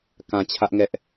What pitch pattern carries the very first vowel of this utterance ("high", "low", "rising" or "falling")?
low